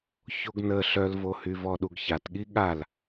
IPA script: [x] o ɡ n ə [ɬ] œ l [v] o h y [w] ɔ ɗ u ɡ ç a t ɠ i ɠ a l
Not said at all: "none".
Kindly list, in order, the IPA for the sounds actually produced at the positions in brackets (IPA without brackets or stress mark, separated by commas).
ç, ɬ, v, v